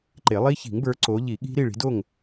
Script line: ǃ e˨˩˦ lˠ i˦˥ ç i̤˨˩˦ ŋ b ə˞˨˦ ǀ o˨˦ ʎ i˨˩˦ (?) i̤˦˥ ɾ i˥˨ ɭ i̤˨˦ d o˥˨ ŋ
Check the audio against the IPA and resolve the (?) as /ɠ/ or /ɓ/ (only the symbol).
ɠ